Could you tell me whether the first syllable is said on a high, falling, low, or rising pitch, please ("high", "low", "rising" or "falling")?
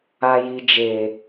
high